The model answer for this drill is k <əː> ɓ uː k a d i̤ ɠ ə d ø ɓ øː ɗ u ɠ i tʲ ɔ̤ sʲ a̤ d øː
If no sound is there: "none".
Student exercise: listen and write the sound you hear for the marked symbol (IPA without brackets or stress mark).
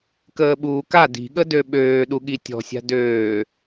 əː